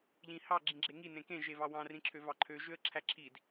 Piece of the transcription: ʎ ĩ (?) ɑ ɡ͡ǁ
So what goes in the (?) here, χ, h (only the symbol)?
h